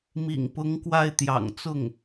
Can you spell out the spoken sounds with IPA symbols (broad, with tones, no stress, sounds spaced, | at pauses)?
m ḭ˨˩ ŋ p ʊ˧˥ ŋ k w a˥˩ ɪ̯ t̪ j ɑ̰˨˩ ŋ t͡s ʊ˥˩ ŋ